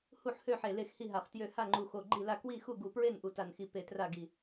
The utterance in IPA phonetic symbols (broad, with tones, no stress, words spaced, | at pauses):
hu˥˨ħhø˥˨ħe˧˩ le˥˨xhi˥˨ɦa˧˩χtjø˥˨ ha˥˨ŋ͡ǃu˧˩xo˧˩ ɡ͡ǃi˥˨la˥˨ kwi˥˨xu˥˨ɡu˧˩pɹe˥˨n ʔu˧˩ta˧˩nxi˧˩ pe˧˩tra˥˨ɡi˧˩